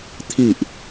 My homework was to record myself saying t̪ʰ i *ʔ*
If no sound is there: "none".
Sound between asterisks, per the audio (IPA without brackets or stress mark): ʔ